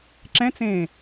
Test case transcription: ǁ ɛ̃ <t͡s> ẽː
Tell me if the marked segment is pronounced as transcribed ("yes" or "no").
yes